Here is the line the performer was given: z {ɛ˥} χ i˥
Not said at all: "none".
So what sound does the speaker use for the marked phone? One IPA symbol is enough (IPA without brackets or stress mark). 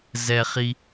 ɛ˥